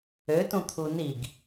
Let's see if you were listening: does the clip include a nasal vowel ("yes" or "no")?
yes